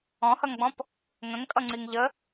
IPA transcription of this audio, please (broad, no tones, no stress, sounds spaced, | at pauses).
ɔ̃ h ʌ ŋ ɡ͡b ɔ̃ p | ŋ ə̃ ŋ kʼ ʌ ŋ͡ǀ i ŋ ʎ ə